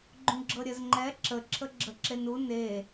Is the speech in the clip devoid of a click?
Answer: no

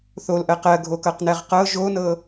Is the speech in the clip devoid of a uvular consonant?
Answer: no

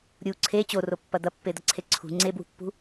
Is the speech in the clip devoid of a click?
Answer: no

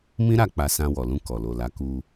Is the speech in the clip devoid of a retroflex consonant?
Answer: yes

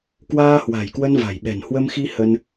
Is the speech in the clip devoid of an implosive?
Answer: no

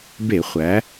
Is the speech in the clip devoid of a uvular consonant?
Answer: no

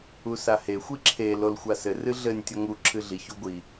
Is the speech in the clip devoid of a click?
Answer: no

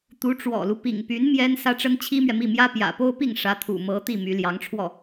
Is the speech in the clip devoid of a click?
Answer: yes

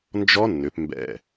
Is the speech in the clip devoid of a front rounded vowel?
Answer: no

